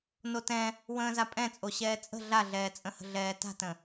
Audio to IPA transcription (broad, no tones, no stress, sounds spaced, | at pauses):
n o t ɛ̃ | w ə̃ː z a pʼ ɛ̃ t͡sʼ o ɕ ɛː t͡sʼ ə̤ ɮ a ɮ ɛː t͡sʼ ə̃ h ə̤ ɮ ɛː t a̤ t ə̃